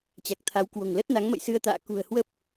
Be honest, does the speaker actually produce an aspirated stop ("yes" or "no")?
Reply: yes